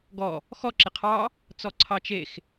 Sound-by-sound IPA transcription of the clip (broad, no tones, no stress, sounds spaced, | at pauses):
ɡ ɔ | x ɔ ǁ ɪ qʰ ɑ | t͡s ɔ ǀʰ ɑ t͡ʃ e x